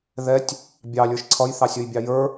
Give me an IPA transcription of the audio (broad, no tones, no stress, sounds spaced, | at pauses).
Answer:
ð ɛ tʲ | bʲ ɑ lʲ ə˞ ʃ ǀʰ ʌ j θ ɑ sʲ ʌ j bʲ ɑ j ə˞